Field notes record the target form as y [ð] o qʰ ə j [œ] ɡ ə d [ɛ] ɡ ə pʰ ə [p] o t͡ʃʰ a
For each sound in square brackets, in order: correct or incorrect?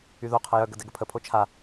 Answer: correct, correct, correct, incorrect: pʰ

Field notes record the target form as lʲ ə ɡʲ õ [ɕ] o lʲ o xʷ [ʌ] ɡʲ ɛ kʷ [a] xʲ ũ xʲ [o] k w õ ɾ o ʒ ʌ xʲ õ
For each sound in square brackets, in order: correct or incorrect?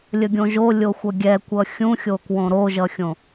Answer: incorrect: ʒ, correct, incorrect: ʌ, correct

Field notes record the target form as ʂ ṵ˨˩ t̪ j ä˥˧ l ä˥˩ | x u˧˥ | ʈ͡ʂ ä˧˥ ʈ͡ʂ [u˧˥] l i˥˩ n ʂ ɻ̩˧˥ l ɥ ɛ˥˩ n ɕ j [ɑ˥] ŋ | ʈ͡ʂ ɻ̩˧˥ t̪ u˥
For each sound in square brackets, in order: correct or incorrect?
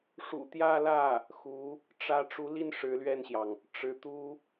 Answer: correct, incorrect: ɑ˩

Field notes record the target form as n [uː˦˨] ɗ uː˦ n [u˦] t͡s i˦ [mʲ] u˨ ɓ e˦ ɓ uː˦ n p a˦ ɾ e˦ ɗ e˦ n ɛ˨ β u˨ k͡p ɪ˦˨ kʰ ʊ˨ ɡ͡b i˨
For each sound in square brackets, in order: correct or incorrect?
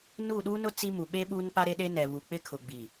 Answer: correct, incorrect: ʊ˦, incorrect: m

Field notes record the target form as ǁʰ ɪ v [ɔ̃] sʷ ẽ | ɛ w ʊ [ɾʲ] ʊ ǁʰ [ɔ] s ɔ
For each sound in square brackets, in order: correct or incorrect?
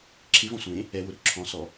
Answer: correct, incorrect: ɾ, incorrect: ɔ̃

